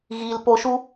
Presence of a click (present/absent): absent